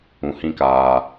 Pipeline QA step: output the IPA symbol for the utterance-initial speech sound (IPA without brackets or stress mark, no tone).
ũ